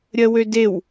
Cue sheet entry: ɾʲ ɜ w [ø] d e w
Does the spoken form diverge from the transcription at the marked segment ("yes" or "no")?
no